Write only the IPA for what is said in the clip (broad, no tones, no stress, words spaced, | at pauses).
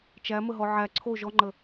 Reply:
t͡ʃæməɦɔ ʕæ ǀʰo ʒɔŋ͡ǃə